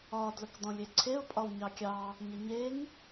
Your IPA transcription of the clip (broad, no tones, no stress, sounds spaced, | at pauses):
ɒ d l ə k d ɔ̃ lʲ e ǀʰ e ʊ̯ pʼ ɒ w ɲ ɑ kʲ ɑ | ɲ ə ɲ e ŋ